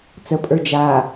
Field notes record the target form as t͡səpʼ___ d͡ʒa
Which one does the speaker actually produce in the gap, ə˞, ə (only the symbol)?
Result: ə˞